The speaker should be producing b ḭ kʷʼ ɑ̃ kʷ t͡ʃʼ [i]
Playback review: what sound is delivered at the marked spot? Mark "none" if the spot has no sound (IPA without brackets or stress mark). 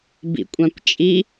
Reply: i